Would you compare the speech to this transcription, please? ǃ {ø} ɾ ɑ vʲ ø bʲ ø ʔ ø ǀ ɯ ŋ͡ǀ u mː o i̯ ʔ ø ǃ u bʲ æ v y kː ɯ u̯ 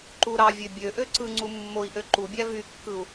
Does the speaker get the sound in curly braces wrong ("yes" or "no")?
yes